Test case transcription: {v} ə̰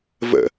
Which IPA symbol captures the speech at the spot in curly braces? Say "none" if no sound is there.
v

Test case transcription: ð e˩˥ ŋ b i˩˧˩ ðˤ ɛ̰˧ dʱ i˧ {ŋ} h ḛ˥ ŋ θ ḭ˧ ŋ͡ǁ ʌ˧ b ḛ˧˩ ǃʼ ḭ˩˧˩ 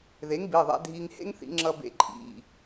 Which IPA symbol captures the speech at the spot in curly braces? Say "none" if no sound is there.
ŋ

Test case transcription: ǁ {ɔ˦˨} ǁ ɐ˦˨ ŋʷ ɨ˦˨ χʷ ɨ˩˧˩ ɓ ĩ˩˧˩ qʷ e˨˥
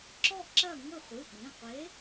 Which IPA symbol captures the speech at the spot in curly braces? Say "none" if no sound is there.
ɔ˦˨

